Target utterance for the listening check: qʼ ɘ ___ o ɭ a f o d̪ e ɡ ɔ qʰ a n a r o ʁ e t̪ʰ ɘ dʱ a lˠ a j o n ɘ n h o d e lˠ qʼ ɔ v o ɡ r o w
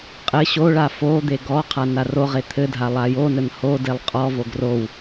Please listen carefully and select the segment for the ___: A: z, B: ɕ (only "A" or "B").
B